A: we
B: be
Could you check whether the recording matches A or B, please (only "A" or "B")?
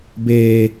B